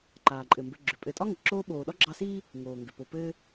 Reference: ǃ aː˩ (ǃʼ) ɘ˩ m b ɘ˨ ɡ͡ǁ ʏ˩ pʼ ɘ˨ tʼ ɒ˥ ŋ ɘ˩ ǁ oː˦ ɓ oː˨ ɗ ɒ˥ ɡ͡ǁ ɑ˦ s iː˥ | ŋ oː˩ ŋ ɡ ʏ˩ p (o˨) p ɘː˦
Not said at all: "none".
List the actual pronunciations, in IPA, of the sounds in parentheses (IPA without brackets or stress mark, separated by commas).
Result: ǃʼ, o˨